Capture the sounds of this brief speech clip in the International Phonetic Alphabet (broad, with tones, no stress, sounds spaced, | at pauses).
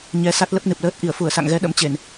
ɲ ɛ˨˦ s a˦˥ t̚ l ə˦˥ p̚ n ɨ˨˩ p̚ l əː˦˥ t̚ ʔ i˧˩ ə̯ f u˧˩ ə̯ s a̰˧˨ ŋ ɣ ɛ˨˦ ɗ ə̰˧˥ m t͡ɕ e˧˩˨ n